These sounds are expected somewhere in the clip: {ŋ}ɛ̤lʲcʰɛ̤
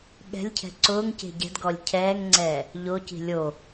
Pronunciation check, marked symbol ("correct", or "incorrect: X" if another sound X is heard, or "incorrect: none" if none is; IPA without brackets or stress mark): incorrect: ɠ